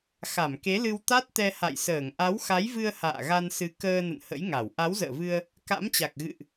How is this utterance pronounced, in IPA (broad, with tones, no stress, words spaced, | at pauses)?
xa˧˩mke˨˦lɨ˧w t̪a˦˥t̚t̪ɛ˧ha̰˧˨jsəː˧˩ŋ ʔa˨˦wxa˨˦jvɨ˧ə̯ ha̰ː˧˨ɣa˧nsɨ˨˦kəː˧ nə̰˧˨nhə̰˧˥jŋa˧˩w ʔa˨˦wzə̰ː˧˨vɨ˧ə̯ | ka̰˧˥mt͡ɕa˨˩k̚ ɣɨ̰˧˨ʔ